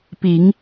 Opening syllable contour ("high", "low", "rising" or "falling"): rising